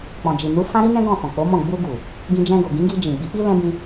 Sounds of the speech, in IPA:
k͡p ɔ̃˨ d͡ʒ i˨ n u˨˦ f ã˦ ɾ i˦ n ɛ̃˦ ɡ ɔ̃˦˨ f ɔ̃˨ k͡p o˨˦ m ɔ̃˦˨ ɡ͡b u˧ ɡ u˨ | ɡ ĩ˧ d͡ʒ ɛ̃˧ ɡ o˨ ɡ ĩ˨˦ ɡ i˧ d͡ʒ ĩ˨ ɡ͡b i˨˦ k͡p i˦ l ɛ̃˦ b ĩ˧

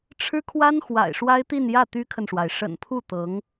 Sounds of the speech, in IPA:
ʈ͡ʂʰ ɻ̩˥ kʰ w a˥ n x w a̰˨˩ ɪ̯ ʂ w a˥ ɪ̯ t̪ i˥˧ n j ä˥˩ t̪ y˥ kʰ ə˨ n ʂ w a˩ ɪ̯ ʂ ə̰˨˩ n pʰ u˥˩ t̪ ɤ˧˥ ŋ

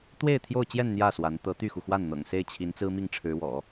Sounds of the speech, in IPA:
t̪ w e˥˧ ɪ̯ t̪ʰ j o˥˧ ʊ̯ t͡ɕ j ɛ˥˧ n n̪ j ä˥˩ s w a˧˥ n t̪ ɤ˧˥ t̪ y˥˩ x u˩ x w a˥˩ n n̪ ɤ̰˨˩ ŋ s e˥˩ ɪ̯ t͡ɕʰ i˧˥ n t͡s ɹ̩˥ m i˥˩ ŋ ʈ͡ʂʰ ɻ̩˧˥ w ɔ̰˨˩˦

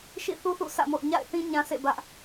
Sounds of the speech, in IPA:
ʃ ḭ˦˨ θ u˦ θ ṵ˦˨ sʰ ä̰˦˨ m o̰˦˨ ʊ̯ ɲ a̰˦˨ ɪ̯ θ ĩ˦ ɲ ã˦ sʰ ḛ˦˨ b ä˦ ʔ

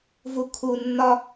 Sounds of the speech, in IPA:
v u kʰ u nː ɒ

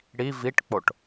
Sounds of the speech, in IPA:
ɽ i v i ʈ k͡p o ʈ

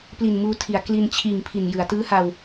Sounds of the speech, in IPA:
p l i˨˩ n m uː˧ tʰ i˩˦ a̯ k l i˧ n t͡ɕʰ iː˨˩ ŋ pʰ i˨˩ n j ɯ˩˦ a̯ t ɯː˦˥ h a˧ w

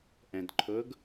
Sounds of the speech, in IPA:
ʔ ɛ̃ d ǃʰ ʊ ɡ

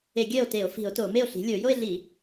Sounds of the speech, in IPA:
e˧˩˧ ɡʲ ɜ˥˩ o̯ t e˧˩˧ o̯ f i̤˧˩˧ o̯ t o˧˩˧ m e˥˩ o̯ ɬ i̤˩˥ lʲ o˧˩˧ j o˥˧ e̯ ɮ i˧˩˧

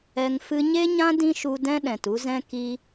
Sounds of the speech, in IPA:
ɛ˧ ŋ f ɨ˧ ɲ e˦ ɲ ã˦ d ĩ˦ ʃ u˧ d ɛ̃˦ ɗ ɛ̃˨ t u˦ z ɛ̃˦ k i˧

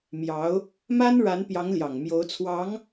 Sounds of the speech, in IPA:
m j ɑ˧˥ ʊ̯ | m a˥ n ɻ a˧˥ n p j ɑ˧˥ ŋ l j ɑ˨˩ ŋ m j o˧˥ ʊ̯ t͡sʰ w ɑ˧˥ ŋ

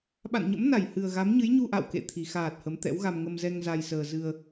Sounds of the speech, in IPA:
ɓ a̰˧˨ n ɲ ə̰˧˥ m n a˧˩ j h ɨ˨˩ ə̯ ɣ a˨˦ m ɲ ɨ˨˦ j ɲ u˧ ʔ a̰˧˨ w k ḛ˧˨ t̪ʰ i˨˩ x aː˨˩ t̚ h ə˨˦ m t̪ ɛ̰˧˥ w ɣ a˧ m ŋ ə˧ m z ɛ˧ ŋ z a˧ j s əː˧ z ɨ˧ ə̯

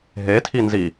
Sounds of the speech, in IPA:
ɦ e tʰ i n z i

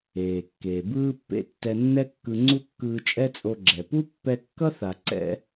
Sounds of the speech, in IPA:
eː˩ kː eː˩ b ɯː˧ pː ḛ˧ tː ɛ˧ nː ɛ˥ kː ɯ˧ ŋ͡ǀ u˥ kː ɯː˧ t͡ʃʼ ɛ˥ t͡sʼ o˧ ɡ͡ǁ ɛ˩ p u˥ pː ɛ˧ kː ʌ˥ θ a˩ ǀ ɛ̰˧

